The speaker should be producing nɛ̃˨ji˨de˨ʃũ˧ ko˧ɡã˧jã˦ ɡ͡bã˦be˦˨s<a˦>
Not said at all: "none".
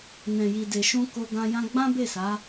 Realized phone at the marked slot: a˨˦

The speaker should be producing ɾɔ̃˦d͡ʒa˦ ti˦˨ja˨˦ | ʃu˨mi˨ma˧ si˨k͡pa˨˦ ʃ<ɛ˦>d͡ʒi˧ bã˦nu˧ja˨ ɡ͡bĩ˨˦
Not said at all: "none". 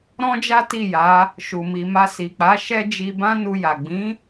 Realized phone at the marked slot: ɛ˦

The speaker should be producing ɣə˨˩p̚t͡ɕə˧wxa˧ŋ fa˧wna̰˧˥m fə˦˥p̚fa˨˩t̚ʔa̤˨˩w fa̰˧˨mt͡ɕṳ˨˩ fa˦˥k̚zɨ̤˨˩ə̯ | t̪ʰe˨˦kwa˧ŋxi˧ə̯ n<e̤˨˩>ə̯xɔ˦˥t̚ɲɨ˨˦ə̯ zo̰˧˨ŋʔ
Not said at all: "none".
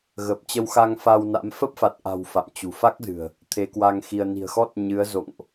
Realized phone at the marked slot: i̤˨˩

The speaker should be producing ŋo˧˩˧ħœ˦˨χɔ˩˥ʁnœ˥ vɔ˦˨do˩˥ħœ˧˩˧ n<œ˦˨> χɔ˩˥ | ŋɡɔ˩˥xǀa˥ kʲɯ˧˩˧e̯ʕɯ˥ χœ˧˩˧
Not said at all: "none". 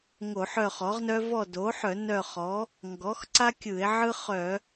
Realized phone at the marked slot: œ˦˨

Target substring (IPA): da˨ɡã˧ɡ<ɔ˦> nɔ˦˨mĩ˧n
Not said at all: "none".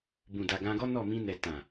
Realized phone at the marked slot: ɔ˦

